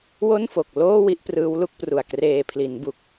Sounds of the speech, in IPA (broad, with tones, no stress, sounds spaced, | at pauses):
w o˥˩ n f o˨˩ k̚ l oː˥˩ w i˥˩ ʔ p r ɯː˦˥ w l u˥˩ k̚ p r u˨˩ a̯ k r eː˨˩ pʰ l i˩˦ n b u˨˩ k̚